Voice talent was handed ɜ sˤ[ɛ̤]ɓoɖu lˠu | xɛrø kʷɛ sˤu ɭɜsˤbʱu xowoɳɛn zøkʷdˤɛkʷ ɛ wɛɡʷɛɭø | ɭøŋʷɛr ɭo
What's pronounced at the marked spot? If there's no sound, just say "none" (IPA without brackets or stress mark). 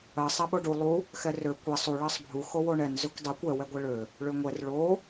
ɛ